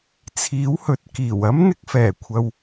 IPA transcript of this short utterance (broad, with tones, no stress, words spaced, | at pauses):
t͡sʰiː˨˥whɵ˨t̚ kiː˨˩w ɐ˥mn̪ɪ˧k̚fɛː˨˩kʷʰɐ˨w